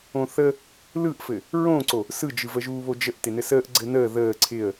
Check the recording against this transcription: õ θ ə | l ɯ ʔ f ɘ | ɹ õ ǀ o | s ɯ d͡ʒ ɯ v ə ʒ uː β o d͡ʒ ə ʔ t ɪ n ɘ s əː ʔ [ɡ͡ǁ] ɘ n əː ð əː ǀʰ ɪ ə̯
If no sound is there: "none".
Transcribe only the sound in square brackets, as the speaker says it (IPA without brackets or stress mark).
ɡ͡ǀ